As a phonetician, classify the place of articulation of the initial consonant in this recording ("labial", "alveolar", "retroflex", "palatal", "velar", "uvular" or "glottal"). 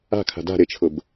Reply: velar